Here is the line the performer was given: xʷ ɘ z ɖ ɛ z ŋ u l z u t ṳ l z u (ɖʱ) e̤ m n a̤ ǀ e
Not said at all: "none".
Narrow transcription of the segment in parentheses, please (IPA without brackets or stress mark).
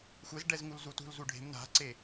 ɖʱ